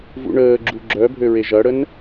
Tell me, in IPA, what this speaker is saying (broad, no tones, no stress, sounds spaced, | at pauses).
v ṵ ɳ əː ɡ͡ǁ u ɡ͡ǁ œ bʱ ø ɹ e ʒ ɐ ɽ ə n